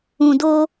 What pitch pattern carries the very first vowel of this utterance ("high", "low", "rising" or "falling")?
low